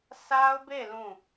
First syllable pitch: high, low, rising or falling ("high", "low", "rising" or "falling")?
high